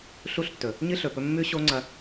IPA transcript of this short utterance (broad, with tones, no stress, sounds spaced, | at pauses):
ɬ u˦˨ ɬ tː ɵ˨ | ɲ ɨ˦ ɬ ɵ˨ p ɵ˧ mː ʉ˦ ɕ o˦ ŋ͡ǀ ɐ˧